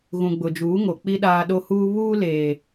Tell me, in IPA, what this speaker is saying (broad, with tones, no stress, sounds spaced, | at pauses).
ɣ ũ˨ ɡ͡b ʊ˨ d͡ʒ uː˨˦ ŋ o˨ k͡p i˦ ɗ aː˦ ɗ o˦ h uː˦ β uː˦ l eː˨